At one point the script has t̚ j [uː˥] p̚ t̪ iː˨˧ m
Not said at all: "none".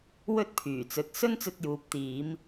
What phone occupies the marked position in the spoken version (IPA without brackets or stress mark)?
uː˨